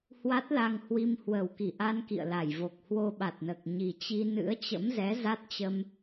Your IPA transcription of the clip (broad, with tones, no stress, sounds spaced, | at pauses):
h w a˦˥ t̚ l a˧ ŋ h w i˧ m h w ə˨˩ w k i˧˩ ʔ a˧ n k ḭ˧˨ ə̯ l a˧˩ j v o˨˩ k̚ h w o˧ ɓ a˨˩ t̚ n əː˨˩ k̚ ɲ i˨˩ t͡ɕ i˧ n ɨ̰˧˥ ə̯ t͡ɕ ə̰˧˥ m z ɛ˨˦ z a˦˥ t̚ t͡ɕ ə˧ m